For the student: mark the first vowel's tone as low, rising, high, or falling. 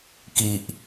low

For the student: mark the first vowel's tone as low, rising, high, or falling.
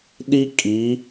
high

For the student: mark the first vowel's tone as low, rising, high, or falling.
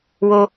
high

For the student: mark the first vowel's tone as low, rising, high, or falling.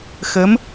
rising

